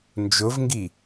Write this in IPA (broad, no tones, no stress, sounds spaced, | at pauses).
n d͡ʒ ʊ v ŋ ɡ i